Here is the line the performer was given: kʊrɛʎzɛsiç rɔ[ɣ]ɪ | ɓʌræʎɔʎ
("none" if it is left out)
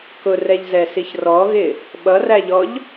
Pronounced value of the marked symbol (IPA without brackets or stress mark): ɣ